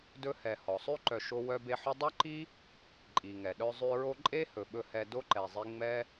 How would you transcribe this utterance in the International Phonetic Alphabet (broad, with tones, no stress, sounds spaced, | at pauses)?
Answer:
d ɵ˧ h ɛ˨ h ɔ˨ sˤ ʉ˦ ǃ œ˧ ʃ o˦ w œ˧ b e˧ ħ ɵ˦ dˤ œ˦ ǃ i˦ | ǃʼ i˨ ŋ ɛ˨ ɗ œ˧ zˤ ʉ˧ ɹ o˦ ǃʼ e˦ h ɵ˨ ɓ ɵ˧ h ɛ˧ d o˦ ǃ ɛ˨ zˤ i˦ ŋ͡m ɛ˦